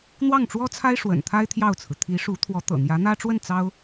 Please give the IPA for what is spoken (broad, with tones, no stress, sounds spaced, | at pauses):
n̪ w ɑ˥˩ ŋ ʈ͡ʂ w ɔ˥ t͡sʰ a˥ ɪ̯ ʂ w ə̰˨˩ n t̪ʰ a˥ ɪ̯ t̪ʰ j ɑ˥˩ ʊ̯ t͡sʰ ɹ̩˩ t̪ʰ i˧˥ ʂ u˧˥ t̪ʰ w ɔ˧˥ t̪ ɤ̰˨˩ n̪ j ä˧˥ n̪ ä˥ ʈ͡ʂ w ə˥˩ n t͡s ɑ˥ ʊ̯